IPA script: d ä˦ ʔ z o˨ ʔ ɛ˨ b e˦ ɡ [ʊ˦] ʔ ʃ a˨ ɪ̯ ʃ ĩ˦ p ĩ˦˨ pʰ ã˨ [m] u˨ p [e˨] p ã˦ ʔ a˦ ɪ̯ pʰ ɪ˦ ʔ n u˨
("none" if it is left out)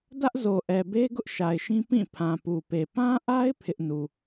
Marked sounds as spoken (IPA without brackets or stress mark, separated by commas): ʊ˦, p, e˨